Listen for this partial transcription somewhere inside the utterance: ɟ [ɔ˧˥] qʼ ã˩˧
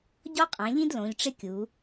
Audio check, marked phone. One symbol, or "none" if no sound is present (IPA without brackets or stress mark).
ɔ˥